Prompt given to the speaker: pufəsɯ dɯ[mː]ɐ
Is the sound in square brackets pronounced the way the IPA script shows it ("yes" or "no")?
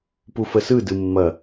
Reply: yes